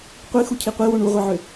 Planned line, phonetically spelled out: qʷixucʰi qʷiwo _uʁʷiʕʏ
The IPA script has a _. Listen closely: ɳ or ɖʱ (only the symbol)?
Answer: ɳ